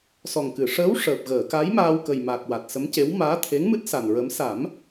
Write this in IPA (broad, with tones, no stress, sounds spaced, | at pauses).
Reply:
s ɔ˨˩ ŋ k ɨ˨˩˨ ʂ əː˧˥ w ʂ əː˨˩ p̚ ɣ əː˨˩˨ k a˧˥ j m aː˧ w k ə˨˩ j m a˨˩ k̚ w a˨˩ t̚ s ə˧˥ m c e˧˥ w m aː˧˥ t̪ʰ e˧˥ ŋ m ɨ˦˥ t̚ s a˨˩ n ɹ ə˧˥ m s a˨˩˦ m